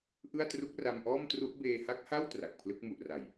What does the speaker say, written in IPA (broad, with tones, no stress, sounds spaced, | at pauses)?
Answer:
ʔ ɯ˥˩ a̯ t r u˦˥ k̚ r a˧ m ʔ ɔː˥˩ m t r u˦˥ ʔ b eː˧ h a˦˥ k̚ h a˥˩ w t r a˨˩ k̚ pʰ l ɯ˦˥ k̚ m u˨˩ ʔ r a˨˩ j